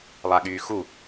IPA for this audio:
lˠaɠyːxu

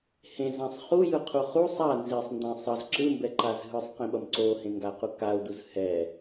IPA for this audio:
hẽzãsˤ χujɯqʰu χu sˤa nzesˤndã sˤʌz ǁɯmbɛǃaz ɦɯsˤqĩɓʌm ǀohẽŋɡaqu kau̯duz hɛ

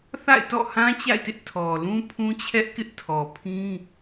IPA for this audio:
θa̰˦˨ɪ̯tɔ̰˦˨hã˦ t͡ɕa̰˦˨ɪ̯tɪ˦ʔ tʰɔ˨ lũ˦pʰũ˦t͡ɕʰɛ˦ʔ kɪ˦ʔtʰɔ˨pʰĩ˦

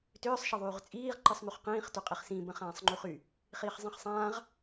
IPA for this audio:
tʏːsˤ ʃəðˤyːʁt͡sʼiːʁ ǃɯsˤmyχqĩːχ tʏqʼiχsĩ bə̃χãːsˤŋ͡ǃyχy | χiːχzˤĩχsˤãːʁ

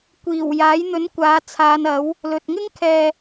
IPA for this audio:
kʷiː˨˩wjaː˨˥j n̪ɵ˨˥n kʷaː˨˧t͡sʰaː˨˧nɐ˨˥w | lɵ˨t̚ ŋɪ˥ŋkʰɛː˨

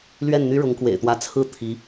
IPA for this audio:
lɥɛ˥˩nn̪y˥ ɻʊ˧˥ŋkwḛ˨˩ɪ̯t̪wä˧˥ t͡sʰɹ̩˥˩ t̪ʰi˧˥

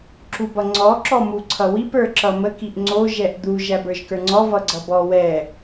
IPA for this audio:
ǁubʌŋ͡ǀɔ ǁɔmuǀʰʌwip ə˞ǁʌmə kiʔŋ͡ǀo ʒɛʔd̪u ʒæbə˞ʒkə˞ŋ͡ǀɔ vʌɡ͡ǀʌbɔ wɛ

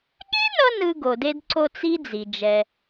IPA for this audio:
ɠe˥nʌ˧ nɯ˧ɡo˩de˧dǀo˧t͡s i˥d͡zi˩ d͡ʒɛ˩

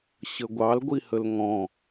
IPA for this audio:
ɕəɡʷɑl ɡʷihəlŋɔ̃

